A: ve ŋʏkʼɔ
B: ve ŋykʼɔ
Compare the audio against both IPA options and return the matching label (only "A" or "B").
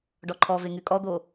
B